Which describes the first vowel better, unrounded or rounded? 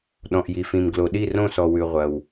rounded